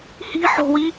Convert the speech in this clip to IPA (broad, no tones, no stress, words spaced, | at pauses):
hi̤ ħo̤wi